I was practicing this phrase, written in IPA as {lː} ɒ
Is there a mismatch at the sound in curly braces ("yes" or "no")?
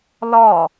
yes